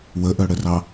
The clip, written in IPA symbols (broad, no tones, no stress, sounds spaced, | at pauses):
w ə ʔ œ ɽ ə r ɑ